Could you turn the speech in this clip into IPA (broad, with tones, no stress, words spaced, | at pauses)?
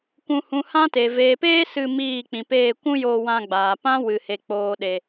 kʷũ˨hũ˨ hã˦te˨ veː˨peː˦ sɨ˧ miː˦˨k͡pĩ˨peː˦˨ kʷũ˦joː˧wã˧ɡ͡baː˨ pã˦wɨ˨he˨ k͡poː˨ɗe˨